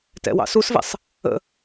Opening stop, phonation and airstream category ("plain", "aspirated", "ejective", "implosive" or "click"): plain